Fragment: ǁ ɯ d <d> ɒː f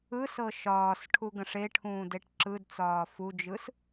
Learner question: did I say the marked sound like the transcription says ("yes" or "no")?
no